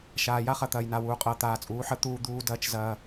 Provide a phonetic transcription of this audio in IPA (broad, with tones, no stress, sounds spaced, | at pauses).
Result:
ʃ aː˨ j a˦ χ ɐ˨ t̪ ɐː˨ j n a˨ w uː˨ qʼ ɐː˨ t̪ aː˨ t͡sʼ uː˨˦ ħ ə˨˦ t̪ uː˦ d̪ uː˦ d ɐː˦ t͡ʃ z ɐː˦